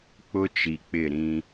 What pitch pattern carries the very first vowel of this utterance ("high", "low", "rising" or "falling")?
high